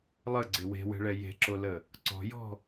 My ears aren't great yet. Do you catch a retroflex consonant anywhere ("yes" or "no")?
yes